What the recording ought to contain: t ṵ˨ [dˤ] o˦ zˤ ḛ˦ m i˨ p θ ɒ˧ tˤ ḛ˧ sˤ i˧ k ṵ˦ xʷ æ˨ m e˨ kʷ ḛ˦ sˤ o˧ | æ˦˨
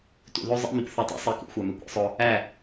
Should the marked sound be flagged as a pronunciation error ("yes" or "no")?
yes